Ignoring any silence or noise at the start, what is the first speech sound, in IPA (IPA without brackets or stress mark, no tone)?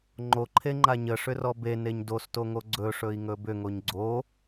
ŋ͡ǃ